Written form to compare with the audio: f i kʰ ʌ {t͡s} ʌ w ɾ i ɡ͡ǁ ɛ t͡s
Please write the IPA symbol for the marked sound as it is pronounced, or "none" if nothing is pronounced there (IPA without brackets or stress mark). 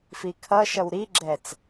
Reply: ʃ